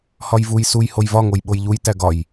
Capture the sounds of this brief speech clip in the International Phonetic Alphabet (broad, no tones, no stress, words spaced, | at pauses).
hɒjvuj suj hojvɒ ŋojɓojʎuj tæɡɒj